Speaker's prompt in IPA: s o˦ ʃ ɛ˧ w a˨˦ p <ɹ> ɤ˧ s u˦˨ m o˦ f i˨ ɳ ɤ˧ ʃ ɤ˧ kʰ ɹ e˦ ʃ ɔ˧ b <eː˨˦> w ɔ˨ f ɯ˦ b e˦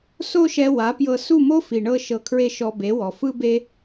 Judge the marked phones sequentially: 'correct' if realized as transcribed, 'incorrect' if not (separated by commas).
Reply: incorrect, incorrect